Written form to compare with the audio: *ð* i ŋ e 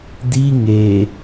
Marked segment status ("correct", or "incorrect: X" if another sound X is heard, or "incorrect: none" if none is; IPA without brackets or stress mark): incorrect: d